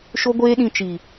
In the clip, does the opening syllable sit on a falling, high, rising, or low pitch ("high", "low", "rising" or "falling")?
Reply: high